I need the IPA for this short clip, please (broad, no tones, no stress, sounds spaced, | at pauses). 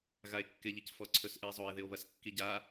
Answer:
ɣ a e̯ kː ɪ ʎ i c f ɔ ǀʰ ɵ s ʔ ɨ e̯ zˤ o e̯ ð ɪ o̯ β ɐ s kː i ɟ a